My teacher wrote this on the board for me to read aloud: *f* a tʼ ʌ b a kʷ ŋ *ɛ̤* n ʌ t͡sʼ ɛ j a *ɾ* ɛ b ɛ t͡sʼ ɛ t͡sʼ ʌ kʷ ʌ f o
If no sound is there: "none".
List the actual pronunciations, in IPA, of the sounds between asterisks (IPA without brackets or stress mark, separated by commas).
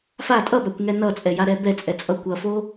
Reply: f, ɛ, ɾ